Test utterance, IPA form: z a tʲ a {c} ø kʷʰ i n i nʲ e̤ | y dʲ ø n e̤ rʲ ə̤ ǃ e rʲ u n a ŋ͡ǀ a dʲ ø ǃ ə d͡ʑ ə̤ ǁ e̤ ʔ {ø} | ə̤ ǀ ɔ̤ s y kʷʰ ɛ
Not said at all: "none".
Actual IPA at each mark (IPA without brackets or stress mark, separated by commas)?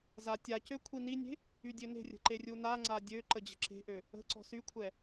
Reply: c, ø